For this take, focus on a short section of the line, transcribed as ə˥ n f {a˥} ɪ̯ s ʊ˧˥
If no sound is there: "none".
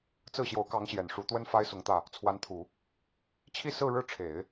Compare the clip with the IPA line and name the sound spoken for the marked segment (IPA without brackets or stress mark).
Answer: a˥